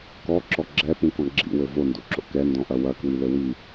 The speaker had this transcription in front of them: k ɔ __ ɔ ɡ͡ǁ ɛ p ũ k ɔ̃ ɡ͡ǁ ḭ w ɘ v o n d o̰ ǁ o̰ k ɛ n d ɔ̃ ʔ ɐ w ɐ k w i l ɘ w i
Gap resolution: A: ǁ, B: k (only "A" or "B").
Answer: A